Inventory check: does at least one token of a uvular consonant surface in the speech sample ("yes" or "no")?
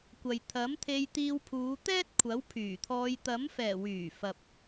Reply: no